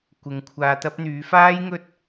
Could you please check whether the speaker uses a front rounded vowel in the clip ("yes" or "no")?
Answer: yes